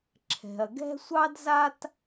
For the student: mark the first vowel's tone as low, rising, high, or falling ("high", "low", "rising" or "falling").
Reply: low